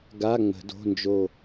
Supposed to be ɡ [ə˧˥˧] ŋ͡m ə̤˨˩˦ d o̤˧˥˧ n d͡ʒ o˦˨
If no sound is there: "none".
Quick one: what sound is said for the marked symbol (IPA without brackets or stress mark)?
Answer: a˧˥˧